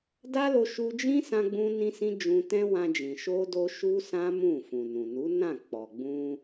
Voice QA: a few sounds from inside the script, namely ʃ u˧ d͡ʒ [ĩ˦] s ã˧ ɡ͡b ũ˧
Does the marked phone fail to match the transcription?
no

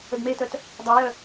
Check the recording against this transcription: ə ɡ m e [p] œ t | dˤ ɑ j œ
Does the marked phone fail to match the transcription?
yes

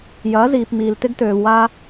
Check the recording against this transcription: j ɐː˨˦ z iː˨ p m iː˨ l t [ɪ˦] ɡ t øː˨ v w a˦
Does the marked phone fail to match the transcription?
no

